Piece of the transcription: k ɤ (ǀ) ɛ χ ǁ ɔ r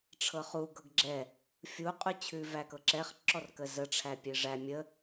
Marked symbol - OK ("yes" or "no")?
no